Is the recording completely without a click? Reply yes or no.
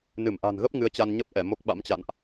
yes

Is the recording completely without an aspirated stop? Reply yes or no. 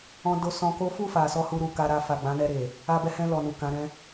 yes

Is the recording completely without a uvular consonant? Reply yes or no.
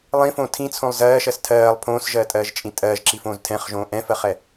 no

